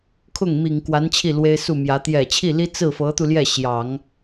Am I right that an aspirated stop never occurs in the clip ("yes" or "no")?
no